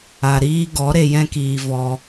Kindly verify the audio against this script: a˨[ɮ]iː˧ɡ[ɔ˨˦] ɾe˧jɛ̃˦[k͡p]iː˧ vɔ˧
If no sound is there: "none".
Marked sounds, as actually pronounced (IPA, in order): ɾ, ɔ˨˦, k

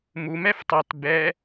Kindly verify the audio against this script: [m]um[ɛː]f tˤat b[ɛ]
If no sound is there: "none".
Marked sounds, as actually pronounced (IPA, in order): m, ɛ, ɛ

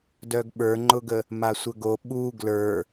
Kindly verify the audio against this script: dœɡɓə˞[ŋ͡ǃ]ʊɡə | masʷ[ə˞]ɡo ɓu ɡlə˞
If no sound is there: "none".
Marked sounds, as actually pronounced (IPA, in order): ŋ͡ǃ, ə

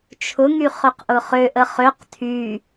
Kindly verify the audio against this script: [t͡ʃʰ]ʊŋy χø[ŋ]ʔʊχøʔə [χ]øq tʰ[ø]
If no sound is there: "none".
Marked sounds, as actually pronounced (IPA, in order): t͡ʃʰ, q, χ, y

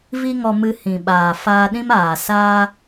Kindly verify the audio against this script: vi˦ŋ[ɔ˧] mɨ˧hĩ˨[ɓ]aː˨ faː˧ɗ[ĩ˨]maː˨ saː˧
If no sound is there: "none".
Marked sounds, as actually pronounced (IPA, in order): ɔ˧, ɓ, ĩ˦

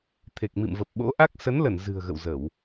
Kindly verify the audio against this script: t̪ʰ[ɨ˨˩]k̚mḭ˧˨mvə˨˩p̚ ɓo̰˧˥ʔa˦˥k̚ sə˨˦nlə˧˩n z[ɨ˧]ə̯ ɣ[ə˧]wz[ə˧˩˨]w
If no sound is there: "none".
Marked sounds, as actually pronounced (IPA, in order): e˨˩, ɨ̤˨˩, ə̰˧˨, ə˧˩˨

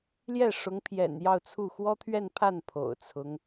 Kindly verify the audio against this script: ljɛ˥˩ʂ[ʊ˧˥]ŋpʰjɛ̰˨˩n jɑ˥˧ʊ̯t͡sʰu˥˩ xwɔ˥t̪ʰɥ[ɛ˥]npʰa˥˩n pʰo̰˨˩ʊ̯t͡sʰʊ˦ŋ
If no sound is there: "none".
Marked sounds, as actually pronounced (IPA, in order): ʊ˧˥, ɛ˥˧

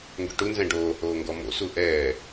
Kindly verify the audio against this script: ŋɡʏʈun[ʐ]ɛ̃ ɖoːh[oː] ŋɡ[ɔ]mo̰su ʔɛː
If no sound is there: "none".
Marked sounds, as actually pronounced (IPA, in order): z, oː, ɔ

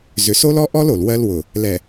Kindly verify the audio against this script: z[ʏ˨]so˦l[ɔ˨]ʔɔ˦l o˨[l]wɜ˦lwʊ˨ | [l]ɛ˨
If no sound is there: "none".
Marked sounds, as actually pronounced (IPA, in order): ʏ˨, ɔ˦, l, l

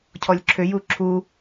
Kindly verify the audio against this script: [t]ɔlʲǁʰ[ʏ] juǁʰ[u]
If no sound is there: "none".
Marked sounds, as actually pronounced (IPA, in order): cʰ, ʏ, u

